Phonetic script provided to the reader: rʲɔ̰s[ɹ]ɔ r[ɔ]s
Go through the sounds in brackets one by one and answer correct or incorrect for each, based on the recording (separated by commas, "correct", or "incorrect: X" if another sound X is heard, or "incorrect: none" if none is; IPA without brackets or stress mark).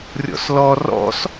incorrect: l, incorrect: ɔ̰